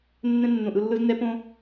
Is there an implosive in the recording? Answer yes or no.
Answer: no